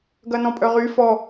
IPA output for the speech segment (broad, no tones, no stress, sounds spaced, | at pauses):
ɡ ɐ n ɔ̃ pʼ œ ʁ y f ɔ